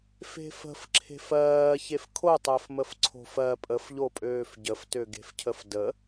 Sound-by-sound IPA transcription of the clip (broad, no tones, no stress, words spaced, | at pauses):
fe̤fə̤fǁʰe̤f ɜː çefkʰotˤəːfməf ǀʰo̤fɜ pʼəfʎopʼøːf ɟəftøɡe̤fcʰəf də